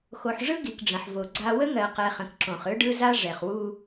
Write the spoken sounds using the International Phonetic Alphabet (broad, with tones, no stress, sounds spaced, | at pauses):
x o˨ ħ ʐ ɯ˦ ɡ i˨ k ɖ͡ʐ ə̃˨ ħ v o˨ ɡ͡ǀ a˦ w ə˦ ŋ ɜ˨ q ɛ˨ χ ə̃˨ k ǁ õ˨ χ ɯ˦ ɖ ɯ˦ z a˦ ʐ ɛ˨ χ w u˦